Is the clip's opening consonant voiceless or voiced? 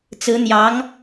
voiceless